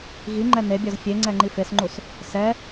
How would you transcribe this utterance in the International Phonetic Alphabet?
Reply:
ɣ i ŋ͡ǃ ɛ n e bʲ ɔ z fʲ e ŋ͡ǀ ɛ ŋ͡ǃ i f e s ŋ͡ǃ u s | s ɛ

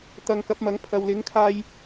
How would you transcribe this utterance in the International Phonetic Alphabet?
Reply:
t̪ ɐ˨˧ ŋ k ɐ˨˥ p̚ m ɐ˨˥ ŋ pʰ ɐ˨ w l ɪ˨˥ ŋ kʰ aː˧ j

